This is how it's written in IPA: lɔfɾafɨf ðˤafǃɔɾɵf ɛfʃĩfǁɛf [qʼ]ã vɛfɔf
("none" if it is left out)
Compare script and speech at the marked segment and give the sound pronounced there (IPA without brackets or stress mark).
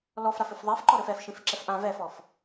ʔ